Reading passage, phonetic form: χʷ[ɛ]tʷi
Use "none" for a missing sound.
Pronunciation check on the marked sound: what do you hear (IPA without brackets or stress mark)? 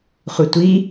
ɨ